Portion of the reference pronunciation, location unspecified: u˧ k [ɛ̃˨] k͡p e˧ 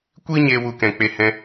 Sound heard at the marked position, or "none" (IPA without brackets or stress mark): ɛ̃˨